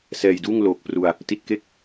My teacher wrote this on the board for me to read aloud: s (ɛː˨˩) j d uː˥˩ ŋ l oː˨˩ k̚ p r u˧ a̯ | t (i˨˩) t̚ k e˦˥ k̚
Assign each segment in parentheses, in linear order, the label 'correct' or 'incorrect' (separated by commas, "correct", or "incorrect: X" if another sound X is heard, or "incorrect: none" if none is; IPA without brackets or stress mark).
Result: correct, correct